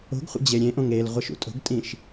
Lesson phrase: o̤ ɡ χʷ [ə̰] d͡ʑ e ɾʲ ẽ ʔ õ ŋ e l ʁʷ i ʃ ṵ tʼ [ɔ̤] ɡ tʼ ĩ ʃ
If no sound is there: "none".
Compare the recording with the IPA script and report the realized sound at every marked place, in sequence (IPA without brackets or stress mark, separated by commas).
ə̰, o̤